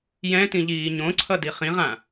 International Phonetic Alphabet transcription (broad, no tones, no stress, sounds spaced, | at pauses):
j ɛ̃ t ĩ ʎ iː ɲ õ ǀʰ ʌ d i χ ĩ ʁ ã